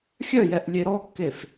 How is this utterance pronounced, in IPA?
xʲ œ j ɛ ʔ lʲ e ɾ ɔ kː e f

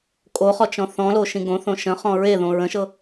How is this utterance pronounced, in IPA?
kʼ o χ ɔ t͡ʃ ɔ̃ θ ɔ̃ l o ʃ ĩ ɡ õ θ õ ʃ ə̃ χ ɔ̃ ɹ e ð õ ɹ ə̃ ʃ ɤ

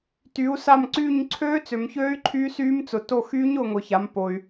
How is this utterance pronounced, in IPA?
t y˨˦ u̯ s a˦˨ m ǀ yː˦˨ ɲ ǀʰ øː˦˥ t͡s ø˨ m ç øː˦˥ y̯ ǃʰ y˦˥ s yː˦˥ m t͡s ʊ˨˦ t o˦˨ x yː˦˥ ɲ ʊː˦˨ ŋ ʊː˨ ç a˨˦ m p o˨ y̯

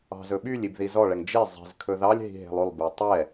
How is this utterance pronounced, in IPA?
ɑ̤ z ɵ ɓ y lʲ i b ð i z ɔ ɭ ɛ ŋ d͡ʒ e zˤ i̤ z kʰ ɵ ð ɑ lʲ ɦ i̤ ɦ e̤ lˠ ʉ lˠ b e tˤ ɛ

